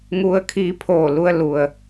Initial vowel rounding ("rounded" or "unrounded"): rounded